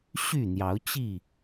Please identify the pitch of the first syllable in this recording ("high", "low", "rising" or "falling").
falling